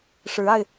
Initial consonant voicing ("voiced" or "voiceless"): voiceless